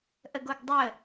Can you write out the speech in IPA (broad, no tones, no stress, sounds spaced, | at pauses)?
ʔ ə ɡ o ɡ dˤ ə